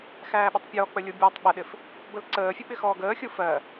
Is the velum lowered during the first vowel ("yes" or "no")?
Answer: no